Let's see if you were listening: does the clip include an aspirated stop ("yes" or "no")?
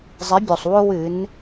no